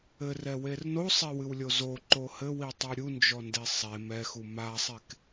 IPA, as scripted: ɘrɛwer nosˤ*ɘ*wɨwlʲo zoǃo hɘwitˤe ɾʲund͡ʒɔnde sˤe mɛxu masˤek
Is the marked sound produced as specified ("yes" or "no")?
no